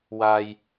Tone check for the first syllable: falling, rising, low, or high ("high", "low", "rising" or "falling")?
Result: low